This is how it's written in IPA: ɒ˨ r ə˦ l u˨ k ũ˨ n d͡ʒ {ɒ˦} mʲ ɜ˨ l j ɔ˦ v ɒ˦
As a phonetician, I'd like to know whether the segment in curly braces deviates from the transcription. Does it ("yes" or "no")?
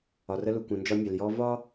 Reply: no